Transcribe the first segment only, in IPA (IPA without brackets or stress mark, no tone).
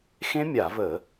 x